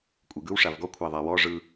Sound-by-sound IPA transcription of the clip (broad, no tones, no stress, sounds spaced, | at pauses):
kʷʼ ɯ ɡ ɯ w ʂ a v ɡ ɔ kʷʰ a ðˤ a w ɔ ʐ ɯ